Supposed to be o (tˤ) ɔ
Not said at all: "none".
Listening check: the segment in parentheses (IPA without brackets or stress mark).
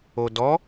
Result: d